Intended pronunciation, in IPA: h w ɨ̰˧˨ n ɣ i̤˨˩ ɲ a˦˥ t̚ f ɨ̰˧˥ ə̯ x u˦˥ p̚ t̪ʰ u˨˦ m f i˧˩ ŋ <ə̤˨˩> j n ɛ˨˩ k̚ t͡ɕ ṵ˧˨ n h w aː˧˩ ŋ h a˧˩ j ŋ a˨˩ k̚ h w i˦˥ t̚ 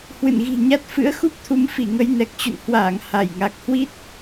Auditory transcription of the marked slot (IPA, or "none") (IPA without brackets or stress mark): ə˨˦